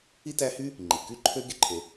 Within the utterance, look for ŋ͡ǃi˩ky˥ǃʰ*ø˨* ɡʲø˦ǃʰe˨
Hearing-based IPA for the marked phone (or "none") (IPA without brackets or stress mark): ø˥